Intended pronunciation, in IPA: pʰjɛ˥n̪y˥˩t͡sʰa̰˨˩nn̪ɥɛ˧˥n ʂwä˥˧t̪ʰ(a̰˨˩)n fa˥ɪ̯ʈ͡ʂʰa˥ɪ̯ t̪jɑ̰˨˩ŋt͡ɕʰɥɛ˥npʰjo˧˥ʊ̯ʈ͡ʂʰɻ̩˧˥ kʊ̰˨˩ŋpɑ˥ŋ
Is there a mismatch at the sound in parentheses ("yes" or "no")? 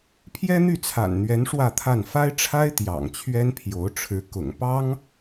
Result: yes